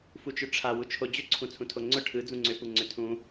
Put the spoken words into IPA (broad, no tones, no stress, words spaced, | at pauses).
fut͡ʃʏʈ͡ʂʰa wut͡ʃʰod͡ʑʏ ǀʰũt͡sʰũtʰoŋ͡ǀʊ ʈʰɯ d͡zũŋ͡ǀʏ puŋ͡ǀʏtʰũ